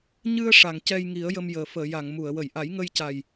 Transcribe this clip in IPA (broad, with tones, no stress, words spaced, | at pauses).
ɲɨ˧ə̯ ʂa˨˩˨ŋcɛ˧j ŋi˨˩˦ə̯jə˧m jəː˨˩fəː˨˩˨ja˨˩˨ŋmu˨˩˨ə̯ wə˨˩˨jʔa˨˩˦jŋə˧jca˨˩j